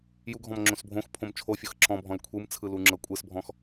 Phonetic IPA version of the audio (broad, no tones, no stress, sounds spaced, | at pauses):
j u ɡʱ ɔ̃ m ŋ͡ǁ õ s bʱ õ x pʰ õ m t͡ʃʰ o fʲ ɤ x ǁ ɔ̃ bʱ ɔ̃ l kʷʰ ɯ m t͡sʰ ɯ l u ŋ͡ǁ ɤ kʷʼ ɯ s bʱ ɔ̃ x